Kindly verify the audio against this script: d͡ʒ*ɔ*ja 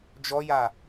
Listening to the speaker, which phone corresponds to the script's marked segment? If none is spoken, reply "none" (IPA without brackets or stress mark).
ɔ